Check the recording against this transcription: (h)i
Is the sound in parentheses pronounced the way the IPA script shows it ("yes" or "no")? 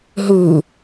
no